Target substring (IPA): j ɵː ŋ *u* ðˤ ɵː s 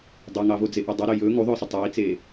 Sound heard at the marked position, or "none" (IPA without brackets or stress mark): u